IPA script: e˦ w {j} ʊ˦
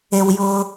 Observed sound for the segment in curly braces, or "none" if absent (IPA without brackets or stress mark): j